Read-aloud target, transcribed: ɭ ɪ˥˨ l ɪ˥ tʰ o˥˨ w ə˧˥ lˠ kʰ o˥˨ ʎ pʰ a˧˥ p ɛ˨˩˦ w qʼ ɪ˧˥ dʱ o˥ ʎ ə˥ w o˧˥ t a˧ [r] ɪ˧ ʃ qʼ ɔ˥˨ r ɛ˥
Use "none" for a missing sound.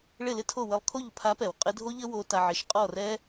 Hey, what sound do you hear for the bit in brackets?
ʕ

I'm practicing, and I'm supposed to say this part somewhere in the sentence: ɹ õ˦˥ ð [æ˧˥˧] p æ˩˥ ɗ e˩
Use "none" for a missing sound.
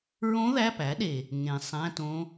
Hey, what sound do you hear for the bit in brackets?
æ˧˥˧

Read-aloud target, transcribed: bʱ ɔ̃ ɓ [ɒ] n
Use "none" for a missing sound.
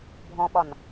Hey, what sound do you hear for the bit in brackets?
ɒ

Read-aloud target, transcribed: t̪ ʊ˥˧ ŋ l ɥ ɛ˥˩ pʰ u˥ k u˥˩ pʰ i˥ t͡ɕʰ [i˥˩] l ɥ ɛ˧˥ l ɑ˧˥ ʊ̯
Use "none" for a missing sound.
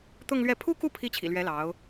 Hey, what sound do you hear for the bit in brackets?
ḭ˨˩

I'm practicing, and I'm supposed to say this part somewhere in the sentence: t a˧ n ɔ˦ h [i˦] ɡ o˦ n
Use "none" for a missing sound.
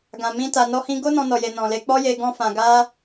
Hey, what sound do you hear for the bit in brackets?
ĩ˦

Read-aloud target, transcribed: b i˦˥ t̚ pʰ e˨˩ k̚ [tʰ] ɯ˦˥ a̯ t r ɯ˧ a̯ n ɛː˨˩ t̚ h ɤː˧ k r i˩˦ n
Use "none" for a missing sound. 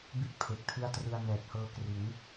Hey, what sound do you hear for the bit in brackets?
tʰ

